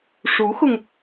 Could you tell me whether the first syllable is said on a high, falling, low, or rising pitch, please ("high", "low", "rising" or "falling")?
rising